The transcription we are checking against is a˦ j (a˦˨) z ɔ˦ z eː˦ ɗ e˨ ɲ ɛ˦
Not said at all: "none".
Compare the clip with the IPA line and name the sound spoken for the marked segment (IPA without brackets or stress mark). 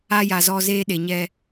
a˨